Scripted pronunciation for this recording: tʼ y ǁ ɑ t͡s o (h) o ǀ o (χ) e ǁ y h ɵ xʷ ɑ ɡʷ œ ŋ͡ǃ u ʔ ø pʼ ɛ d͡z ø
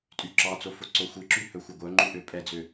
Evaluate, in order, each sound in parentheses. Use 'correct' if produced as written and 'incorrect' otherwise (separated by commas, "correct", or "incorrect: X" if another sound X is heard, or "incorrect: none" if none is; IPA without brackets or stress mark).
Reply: incorrect: f, incorrect: xʷ